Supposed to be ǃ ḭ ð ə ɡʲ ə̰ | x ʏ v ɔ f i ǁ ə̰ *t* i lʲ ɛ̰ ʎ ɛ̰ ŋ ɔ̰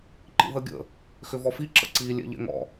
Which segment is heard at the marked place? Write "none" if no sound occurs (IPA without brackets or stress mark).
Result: ǀ